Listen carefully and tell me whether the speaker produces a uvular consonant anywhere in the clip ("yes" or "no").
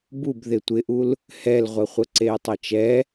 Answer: yes